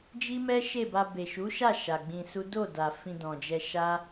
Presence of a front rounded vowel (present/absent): absent